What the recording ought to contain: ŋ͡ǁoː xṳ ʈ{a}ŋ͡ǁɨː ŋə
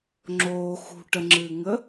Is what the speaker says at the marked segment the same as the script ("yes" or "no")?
no